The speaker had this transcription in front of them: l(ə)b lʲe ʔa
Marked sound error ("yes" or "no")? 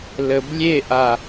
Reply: no